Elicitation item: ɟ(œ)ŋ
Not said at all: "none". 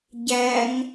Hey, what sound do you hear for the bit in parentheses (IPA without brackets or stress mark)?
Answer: æ